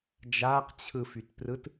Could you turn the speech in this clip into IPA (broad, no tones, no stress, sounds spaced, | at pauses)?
d͡ʒ aː q t͡ɕʰ ɯ f y t p r ɯ t